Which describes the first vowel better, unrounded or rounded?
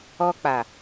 rounded